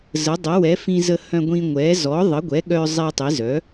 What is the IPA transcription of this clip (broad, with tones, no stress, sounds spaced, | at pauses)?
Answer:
z ə˩˥ dˤ ə˩˥ w ɛ˩˥ f ĩ˧ z ə˧ h œ̃˧ ɡʷ ĩ˧ ŋʷ ɛ˩˥ z ɔ˩˥ ðˤ ə˩˥ ɡʷ ɛ˩˥ ɠ œ˧ zˤ i˧ tˤ i˩˥ z œ˩˥